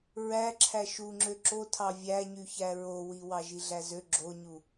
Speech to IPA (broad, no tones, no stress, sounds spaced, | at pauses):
ɹ æ ǁʰ æ ʃ u ŋ͡ǁ ø ǁ o tʰ ɑ vʲ æ ɲ y ç æ ɹ o w i w ɑ ʒ i ɮ æ z ø ɡ͡ǁ o ɲ u